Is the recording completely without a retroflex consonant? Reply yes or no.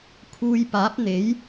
yes